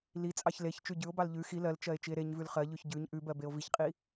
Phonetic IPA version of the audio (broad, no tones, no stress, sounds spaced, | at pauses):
l i t͡sʼ ɑ ç l e ç t͡ʃ ʉ ɟ ʉ o̯ b ɑ l ʎ ʉ x i l ɜ l t͡ʃ ɜ e̯ t͡ʃ i e̯ ɾ e ɲ v ʉ l χ ɜ ʎ ʉ ç ɟ ʉ ɲ ʔ ʉ b ɜ b e o̯ v i ç qʼ i